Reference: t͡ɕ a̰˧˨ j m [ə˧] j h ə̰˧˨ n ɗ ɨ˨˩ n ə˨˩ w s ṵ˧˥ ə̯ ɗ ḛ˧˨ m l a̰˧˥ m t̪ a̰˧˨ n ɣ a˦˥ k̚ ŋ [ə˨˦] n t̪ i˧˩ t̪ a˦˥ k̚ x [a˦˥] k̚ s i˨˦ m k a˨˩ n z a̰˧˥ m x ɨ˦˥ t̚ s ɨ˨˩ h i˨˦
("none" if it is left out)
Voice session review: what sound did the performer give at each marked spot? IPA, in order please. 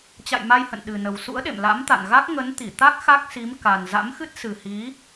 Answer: a˧, ə˨˦, a˦˥

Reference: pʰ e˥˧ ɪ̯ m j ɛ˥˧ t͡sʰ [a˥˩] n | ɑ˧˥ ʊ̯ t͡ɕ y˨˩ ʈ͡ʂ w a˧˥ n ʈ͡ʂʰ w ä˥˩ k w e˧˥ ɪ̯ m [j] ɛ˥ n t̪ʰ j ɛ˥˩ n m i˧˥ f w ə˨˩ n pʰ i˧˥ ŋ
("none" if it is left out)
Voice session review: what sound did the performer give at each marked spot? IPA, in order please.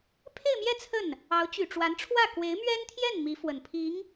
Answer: ə˥˩, ɥ

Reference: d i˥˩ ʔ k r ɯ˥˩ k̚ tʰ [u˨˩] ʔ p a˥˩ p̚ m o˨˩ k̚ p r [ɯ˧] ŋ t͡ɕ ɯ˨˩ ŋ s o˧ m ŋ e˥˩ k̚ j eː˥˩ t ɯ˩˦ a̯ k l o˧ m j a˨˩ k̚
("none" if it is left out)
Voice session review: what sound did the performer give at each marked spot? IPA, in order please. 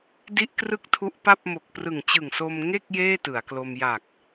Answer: u˦˥, ɯ˨˩

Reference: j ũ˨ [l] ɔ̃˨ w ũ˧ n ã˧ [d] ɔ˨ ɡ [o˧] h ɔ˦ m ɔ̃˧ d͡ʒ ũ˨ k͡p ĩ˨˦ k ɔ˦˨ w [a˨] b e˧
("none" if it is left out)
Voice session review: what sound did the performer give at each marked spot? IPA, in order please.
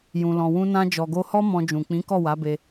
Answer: l, d͡ʒ, o˧, a˨˦

